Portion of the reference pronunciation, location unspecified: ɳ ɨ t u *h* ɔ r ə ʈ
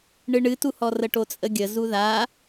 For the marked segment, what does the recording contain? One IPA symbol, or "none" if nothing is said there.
h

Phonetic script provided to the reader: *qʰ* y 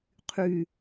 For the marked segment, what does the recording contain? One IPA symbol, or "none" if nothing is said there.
qʰ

